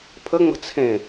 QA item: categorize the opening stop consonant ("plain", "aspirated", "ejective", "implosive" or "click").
aspirated